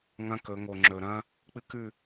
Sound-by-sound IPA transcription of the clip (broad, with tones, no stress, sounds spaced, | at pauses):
ŋ ɐ̃˦ k ɵ˨˦ ŋ o˨ ŋ͡ǁ ɵ˨ ɾ ɐ̃˦ | k͡p ɨ˦ k ʉ˦˨